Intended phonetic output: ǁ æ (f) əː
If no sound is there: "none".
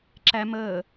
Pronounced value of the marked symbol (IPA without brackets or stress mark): m